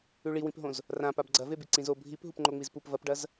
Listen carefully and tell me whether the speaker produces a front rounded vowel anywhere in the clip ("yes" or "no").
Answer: no